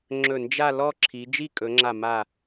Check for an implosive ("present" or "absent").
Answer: absent